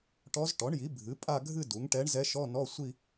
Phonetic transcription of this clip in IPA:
ʈɔ˧˥z ʈɔ˩˥ɳji˩˥ bʱɨ˩˥ pʼa˥˧ɡʱɨ˥˧ du˩˥ŋ ʈɛ˧˥ɳzɛ˧˥ ʃɔ˧˥˧nɔ˧˥˧ sʷi˥˧

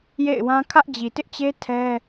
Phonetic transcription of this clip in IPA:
jḛ˦˨ɪ̯wã˦ kʰä˦ʔd͡ʑi˨tɪ˦ʔt͡ɕe˦ tʰɛ˦

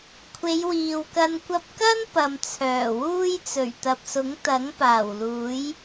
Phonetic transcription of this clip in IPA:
kʷʰe˨˧jwiː˨wkɐ˧n kʷɐ˧p̚kɐ˥n pɐ˨mt͡sʰœː˨˩wuː˥jt͡sɵ˨˩ɥ t̪ɐ˨p̚sʊ˨˥ŋ t̪ɐ˨˥ŋ paː˨˩wluː˨˥j

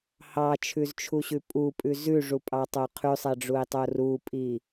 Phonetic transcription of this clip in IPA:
hɑt͡ʃʰʉzt͡ʃʰuɕʉ pʼupʼʉ zʉʐupʼɑtˤo qʰʉsˤɛɖ͡ʐui̯tˤo rupʼi

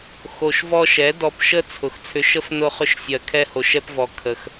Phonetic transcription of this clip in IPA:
xo˨ʃvɔ˧ʃɛ˨˦ dɔ˧pʃə˦ t͡sʰʊ˨xt͡sʰʏ˧ʃə˦f nʊ˦χʏ˦ʃsʲɜ˧ kʰɛ˦ho˧ʃɛ˦pvɔ˧ kʰə˧x

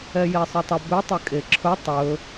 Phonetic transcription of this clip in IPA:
ɛjesˤɵtˤə bʏ tˤʏkʼeǁʰɵ tˤɵ

